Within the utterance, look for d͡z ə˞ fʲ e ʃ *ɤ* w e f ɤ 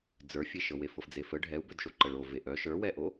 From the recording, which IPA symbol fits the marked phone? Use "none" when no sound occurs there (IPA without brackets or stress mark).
ɤ